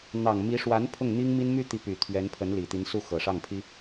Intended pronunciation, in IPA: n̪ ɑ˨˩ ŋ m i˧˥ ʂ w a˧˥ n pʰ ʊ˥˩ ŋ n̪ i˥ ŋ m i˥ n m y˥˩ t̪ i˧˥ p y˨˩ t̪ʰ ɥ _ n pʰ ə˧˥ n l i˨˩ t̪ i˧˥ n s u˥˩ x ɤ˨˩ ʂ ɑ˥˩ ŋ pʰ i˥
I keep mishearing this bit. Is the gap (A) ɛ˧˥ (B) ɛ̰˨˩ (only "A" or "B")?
A